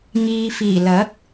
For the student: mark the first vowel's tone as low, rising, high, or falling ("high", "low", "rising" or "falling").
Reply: low